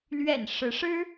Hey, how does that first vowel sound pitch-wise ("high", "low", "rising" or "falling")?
low